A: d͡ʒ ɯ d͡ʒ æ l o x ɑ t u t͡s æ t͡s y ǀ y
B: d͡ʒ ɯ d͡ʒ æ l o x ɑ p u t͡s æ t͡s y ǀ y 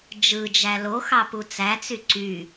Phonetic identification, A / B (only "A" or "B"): B